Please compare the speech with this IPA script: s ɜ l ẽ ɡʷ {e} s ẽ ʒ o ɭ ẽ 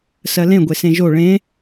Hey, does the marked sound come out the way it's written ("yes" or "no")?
yes